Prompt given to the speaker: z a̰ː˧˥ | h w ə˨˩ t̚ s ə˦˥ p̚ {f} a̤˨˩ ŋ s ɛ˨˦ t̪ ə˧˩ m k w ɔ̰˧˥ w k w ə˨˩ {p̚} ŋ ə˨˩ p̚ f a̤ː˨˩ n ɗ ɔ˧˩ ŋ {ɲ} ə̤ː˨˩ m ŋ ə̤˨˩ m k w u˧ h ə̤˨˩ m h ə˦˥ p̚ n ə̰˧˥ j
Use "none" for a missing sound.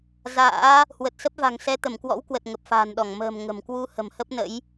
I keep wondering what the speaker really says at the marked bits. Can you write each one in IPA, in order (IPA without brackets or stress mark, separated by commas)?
v, t̚, m